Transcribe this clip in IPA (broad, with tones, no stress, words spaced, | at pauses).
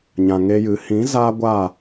ɲã˨ŋe˧jɨ˨˦ hĩ˨˦ zaː˦ ɡʷa˦˨